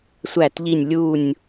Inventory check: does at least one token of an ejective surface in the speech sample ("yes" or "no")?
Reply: no